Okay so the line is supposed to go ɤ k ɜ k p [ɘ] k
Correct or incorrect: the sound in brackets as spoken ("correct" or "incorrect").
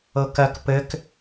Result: correct